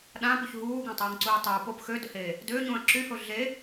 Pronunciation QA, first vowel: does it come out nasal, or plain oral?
nasal